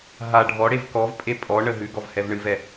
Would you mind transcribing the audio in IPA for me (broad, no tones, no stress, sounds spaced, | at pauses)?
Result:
ɦ a ɖʱ ɔ ɽ e v k ɔ v pʼ e pʼ ɔ ɳ ə ɦ ʉ ɡ ɔ v h ɛ v ɳ ɨ v ɛ